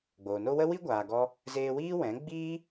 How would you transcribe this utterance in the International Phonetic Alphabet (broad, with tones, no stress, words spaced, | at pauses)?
ɡ͡boː˨no˦ wə˦wi˦ɡʷaː˨ɡɔ˧ | zeː˧wiː˦ wɛ̃˨˦ ɡ͡biː˦